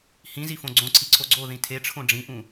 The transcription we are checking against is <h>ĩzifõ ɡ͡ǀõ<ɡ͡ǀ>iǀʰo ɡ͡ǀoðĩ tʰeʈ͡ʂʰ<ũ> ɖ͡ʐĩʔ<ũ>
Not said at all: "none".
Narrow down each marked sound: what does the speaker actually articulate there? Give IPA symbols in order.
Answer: h, ǀʰ, õ, ũ

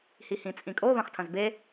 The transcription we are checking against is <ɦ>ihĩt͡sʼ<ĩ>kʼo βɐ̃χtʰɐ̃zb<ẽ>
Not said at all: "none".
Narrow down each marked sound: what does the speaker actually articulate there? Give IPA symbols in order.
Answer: h, ĩ, e

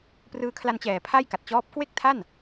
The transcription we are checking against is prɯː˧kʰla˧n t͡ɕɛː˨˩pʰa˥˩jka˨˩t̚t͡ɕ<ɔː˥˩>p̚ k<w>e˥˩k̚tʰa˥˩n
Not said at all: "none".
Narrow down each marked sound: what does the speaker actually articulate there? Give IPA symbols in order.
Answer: ɔː˦˥, w

